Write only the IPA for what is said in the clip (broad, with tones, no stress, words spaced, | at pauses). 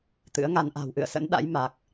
t̪ɨ̰˧˥ə̯ŋa˧n ʔa̤˨˩wʔɨ̰˧˨ə̯sə̰˧˥nɗa̰˧˥j ma˨˩k̚